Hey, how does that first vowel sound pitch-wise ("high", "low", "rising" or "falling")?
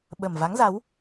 low